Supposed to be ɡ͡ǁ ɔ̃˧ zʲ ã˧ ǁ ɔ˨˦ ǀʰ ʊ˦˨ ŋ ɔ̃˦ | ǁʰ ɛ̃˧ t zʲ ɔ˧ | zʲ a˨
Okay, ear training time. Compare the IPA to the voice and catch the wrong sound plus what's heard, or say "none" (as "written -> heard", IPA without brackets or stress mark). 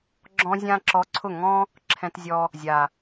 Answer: none